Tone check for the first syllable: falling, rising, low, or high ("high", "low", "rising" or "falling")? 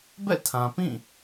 falling